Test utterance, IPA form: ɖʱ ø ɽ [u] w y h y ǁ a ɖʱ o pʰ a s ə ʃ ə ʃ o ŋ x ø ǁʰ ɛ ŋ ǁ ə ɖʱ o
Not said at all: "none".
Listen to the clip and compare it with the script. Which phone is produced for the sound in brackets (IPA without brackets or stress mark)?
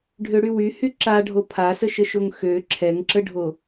y